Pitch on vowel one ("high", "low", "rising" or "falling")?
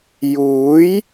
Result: rising